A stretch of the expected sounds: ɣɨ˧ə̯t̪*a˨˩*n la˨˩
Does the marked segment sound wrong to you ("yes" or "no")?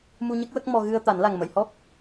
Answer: yes